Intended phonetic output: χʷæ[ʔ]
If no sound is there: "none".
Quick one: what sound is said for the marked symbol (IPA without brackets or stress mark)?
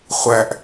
ʔ